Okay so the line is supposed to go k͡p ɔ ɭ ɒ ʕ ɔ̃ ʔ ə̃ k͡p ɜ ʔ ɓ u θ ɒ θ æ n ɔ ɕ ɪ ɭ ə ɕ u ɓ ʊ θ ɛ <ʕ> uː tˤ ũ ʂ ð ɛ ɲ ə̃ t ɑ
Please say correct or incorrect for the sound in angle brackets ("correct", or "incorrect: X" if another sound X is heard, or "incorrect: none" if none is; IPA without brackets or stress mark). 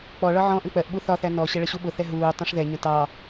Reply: incorrect: ɦ